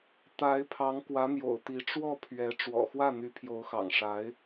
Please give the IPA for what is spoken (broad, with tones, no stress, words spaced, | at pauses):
t̪a˧˥ɪ̯ pʰɑ˧˥ŋkwä˧˥n̪jo̰˨˩ʊ̯t̪i˧˥ ʈ͡ʂwɔ˥˩pʰɥɛ˧˥ ʈ͡ʂwɔ̰˨˩xwä˥˩n̪y˧˥ pʰjo˧˥ʊ̯xɑ̰˨˩ŋʂa˧˥ɪ̯